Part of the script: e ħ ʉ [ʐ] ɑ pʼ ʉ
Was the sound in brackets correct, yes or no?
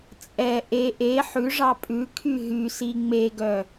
yes